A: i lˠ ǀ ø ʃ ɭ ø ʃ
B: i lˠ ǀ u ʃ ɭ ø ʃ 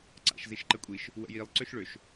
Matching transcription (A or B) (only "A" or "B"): A